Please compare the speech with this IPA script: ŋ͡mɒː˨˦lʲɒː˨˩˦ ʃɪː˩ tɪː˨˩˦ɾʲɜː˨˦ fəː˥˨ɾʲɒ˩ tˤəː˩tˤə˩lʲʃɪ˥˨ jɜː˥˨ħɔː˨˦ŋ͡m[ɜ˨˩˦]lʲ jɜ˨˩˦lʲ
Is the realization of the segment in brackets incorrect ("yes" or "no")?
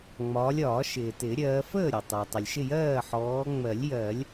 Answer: no